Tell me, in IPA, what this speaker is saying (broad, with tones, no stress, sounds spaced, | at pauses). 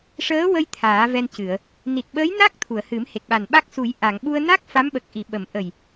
ʂ əː˧˥ w ə˧ j t̪ʰ aː˨˩˦ v ɛ˧ n c ɨ˨˩˨ ə̯ | n i˨˩ t̚ ɓ əː˧˥ j n a˦˥ k̚ t̪ʰ u˨˩˨ ə̯ h ɨ˨˩˦ m h e˨˩ k̚ ɓ a˨˩ n ɓ a˦˥ k̚ s u˨˩˦ j ʔ a˨˩˨ ŋ ɓ u˧ ə̯ n a˦˥ k̚ f a˧˥ m ɓ ə˨˩ k̚ ʔ i˨˩˨ ɓ ə˨˩˨ m ʔ ə˨˩ j